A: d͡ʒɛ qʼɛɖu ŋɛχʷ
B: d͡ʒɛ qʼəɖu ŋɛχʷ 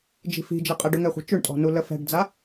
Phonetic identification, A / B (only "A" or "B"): B